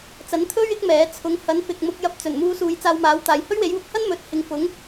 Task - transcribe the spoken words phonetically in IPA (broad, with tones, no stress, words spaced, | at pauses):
t͡sɐ˨˥nt̪ʰɵ˥ɥ ɪ˥k̚mɛː˨˥ t͡sʰʊ˨˥ŋhɐ˨˥n fɪ˨k̚mʊ˧k̚jɐ˧p̚ t͡sɵ˨˩nmuː˧suː˨˧j t͡saː˧wmaː˨˥wt̪aː˨j hɵ˥ɥwe˨˥jwʊ˨˥k̚hɐ˥n mɵ˨t̚hɪ˨˧ŋ fʊ˨˥ŋ